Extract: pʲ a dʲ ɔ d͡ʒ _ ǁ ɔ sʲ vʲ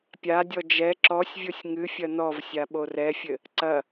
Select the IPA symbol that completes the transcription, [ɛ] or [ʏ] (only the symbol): ɛ